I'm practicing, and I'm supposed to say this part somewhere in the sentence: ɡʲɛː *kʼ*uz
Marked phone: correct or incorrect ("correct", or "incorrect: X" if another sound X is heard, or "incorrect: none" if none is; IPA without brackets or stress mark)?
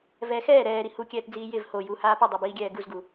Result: incorrect: ɡ